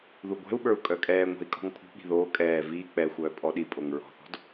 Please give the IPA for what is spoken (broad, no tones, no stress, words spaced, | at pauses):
ðuɡʷɛ̤u̯ɓə˞u̯ kʼœkʼɛːŋʷɛ̤i̯ kʼɔ̤ŋpʰṳɓi̤ ðoː kʼɛː viː k͡pɛxʷœː pʼɔɗipʼoŋ ɹɔ̤θɔ̤d